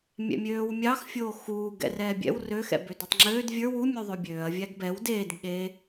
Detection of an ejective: absent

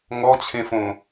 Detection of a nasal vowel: present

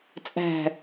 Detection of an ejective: present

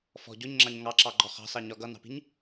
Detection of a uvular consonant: present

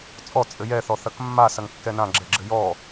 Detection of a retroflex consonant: absent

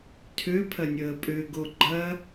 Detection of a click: present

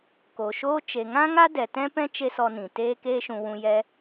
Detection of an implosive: absent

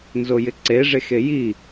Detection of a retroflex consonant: present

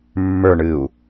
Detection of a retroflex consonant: present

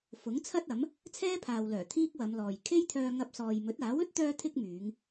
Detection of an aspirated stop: present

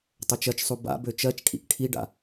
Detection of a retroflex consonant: present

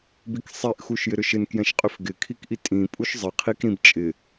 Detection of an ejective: present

